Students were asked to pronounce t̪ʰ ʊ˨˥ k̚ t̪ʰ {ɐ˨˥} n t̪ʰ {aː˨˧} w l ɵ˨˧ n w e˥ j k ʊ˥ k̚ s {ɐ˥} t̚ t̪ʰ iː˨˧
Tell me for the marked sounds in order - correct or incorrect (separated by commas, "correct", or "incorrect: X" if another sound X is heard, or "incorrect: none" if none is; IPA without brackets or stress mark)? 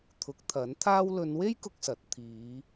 correct, incorrect: aː˧, incorrect: ɐ˨˥